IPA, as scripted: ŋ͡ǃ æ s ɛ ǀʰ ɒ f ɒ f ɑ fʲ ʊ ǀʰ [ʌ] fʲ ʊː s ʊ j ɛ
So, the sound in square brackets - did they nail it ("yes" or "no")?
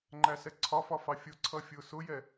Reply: yes